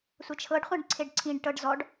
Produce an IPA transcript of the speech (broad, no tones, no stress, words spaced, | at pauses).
sʷʌt͡ʃʰɤɖ χʷãɖǀʰeɖǀʰĩɖ ʈɤɖzɔɖ